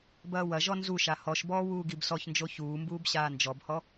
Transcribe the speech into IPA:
bɐːwɐʒɔ nzuʃa hɔʃbɔː wuːɡibsɔçnd͡ʒo çuːmbuːb ɕaːnd͡ʒɔbhɔ

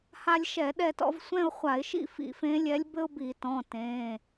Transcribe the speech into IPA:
ha˧lʲʃɛ˧˩˧ɗɛ˧tɔ̰˧v sʷɛ̃˥˧ʊ̯χʷa˧˩˧ɪ̯ʃḭ˥˧ fḭ˧˩˧fẽ˧˥lʲɛ˧˥lʲ bɘ˥ʊ̯bi˧˩˧ tɔ̃˩˧˩ tẽ˩˧˩

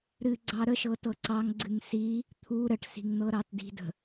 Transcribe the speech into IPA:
ɾɨɡ͡ǀɑ ɾəʃɤ tɤǀɑŋ ɡ͡ǀɨŋsi | t̪ʰu ɾəʈsi̤ŋn̪ɤɾɑt di̤də̤

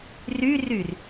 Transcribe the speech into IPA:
ryryr

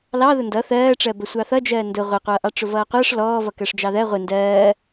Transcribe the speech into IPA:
lɑðʊ ndʌ θɜːʈ͡ʂɜ bəsʷɑθʌd͡ʒɜː ndʊ ʁʷɪqʷʌːʔɑ ʈ͡ʂʊvʌːqʷʌːʂ lɔː vʌkɜʂd͡ʒɑðɜ ʁʷɪ ndɜː

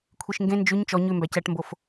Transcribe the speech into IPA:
kʷʰiʃŋɡẽ nd͡ʒʉɲ t͡ʃɔ ɲʉ mbæcæʈmbof

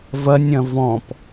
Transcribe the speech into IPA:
vɐnʲ ɐ̃vɔ̃p

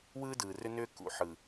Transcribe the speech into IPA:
wɯː˦dɯː˨rʏ˦nʏː˦ kṵ˨ħɯ˨

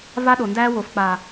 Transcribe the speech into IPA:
va˦ɗo˨ndæː˦ wo˨fk͡pa˨

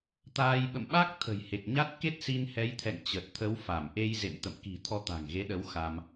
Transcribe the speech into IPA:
t̪aː˧j ɓə̰˧˨mɓa˦˥k̚ t̪ʰə̤˨˩jhe˨˩k̚ɲa˦˥t̚ ke˦˥t̚si˧nhɛ˨˦jt̪ʰɛ̰˧˨ŋ t͡ɕə˨˩t̚t̪ʰə˨˦wfa˧˩m ʔe˧jzḛ˧˨m t̪ə̰˧˨mki̤˨˩ t̪ʰɔ˧t̪a̤˨˩ŋɣe˨˦ɗə˨˦w xa˧m

